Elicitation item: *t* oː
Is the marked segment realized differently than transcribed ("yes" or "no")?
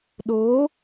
yes